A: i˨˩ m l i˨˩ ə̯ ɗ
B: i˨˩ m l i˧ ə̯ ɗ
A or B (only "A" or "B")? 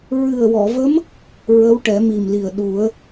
A